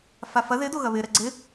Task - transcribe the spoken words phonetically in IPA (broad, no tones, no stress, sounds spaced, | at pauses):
f a f ɐ ð ɪ d o ɣ ɐ β ɪ ɾ ɛ ɡ͡ǀ ɪ